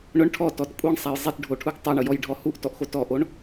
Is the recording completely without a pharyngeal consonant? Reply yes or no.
yes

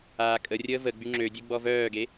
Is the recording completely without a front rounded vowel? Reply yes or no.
no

